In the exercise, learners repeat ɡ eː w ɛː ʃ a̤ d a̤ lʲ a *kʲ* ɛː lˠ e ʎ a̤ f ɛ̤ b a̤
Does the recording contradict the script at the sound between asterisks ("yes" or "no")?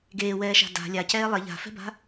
yes